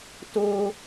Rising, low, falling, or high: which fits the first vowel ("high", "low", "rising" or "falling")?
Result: high